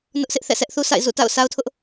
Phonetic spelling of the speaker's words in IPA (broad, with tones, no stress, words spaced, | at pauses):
nʊ˦ʔsʰɪ˦ʔθɛ̰˦˨ sʰɛ˦ʔθu˦sʰa̰˦˨ɪ̯ zṵ˦˨ta̰˦˨ʊ̯sa˦ʊ̯tʰʊ˦ʔ